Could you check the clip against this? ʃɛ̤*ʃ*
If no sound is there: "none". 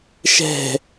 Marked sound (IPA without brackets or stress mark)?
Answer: none